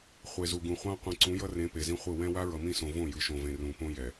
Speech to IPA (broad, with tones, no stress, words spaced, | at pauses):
χʷe˨zu˨ɡũ˨χʷã˦ qʷĩ˨ǀũ˨˦jʌ˦rẽ˨˦ pe˨zĩ˦χʷɯ˦˨ wɛ̃˦ wa˦ɹʌ˨mĩ˦˨sõ˨ võ˦˨jɯ˨ʃõ˨vẽ˨ rũ˨põ˦jɛ˨